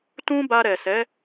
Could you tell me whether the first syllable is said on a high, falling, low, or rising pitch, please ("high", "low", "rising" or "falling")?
high